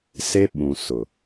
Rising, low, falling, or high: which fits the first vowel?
high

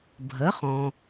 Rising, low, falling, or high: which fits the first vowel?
rising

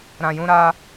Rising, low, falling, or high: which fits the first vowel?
low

